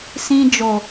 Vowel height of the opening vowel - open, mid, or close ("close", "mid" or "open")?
close